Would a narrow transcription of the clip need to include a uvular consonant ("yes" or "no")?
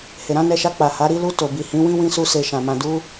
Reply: no